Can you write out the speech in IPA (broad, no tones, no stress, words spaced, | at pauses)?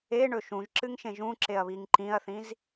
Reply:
eɳɵ ʃũʒǁɨŋʃẽ ʒũǁeɐ̯βiŋ ǃĩɐ̯θĩz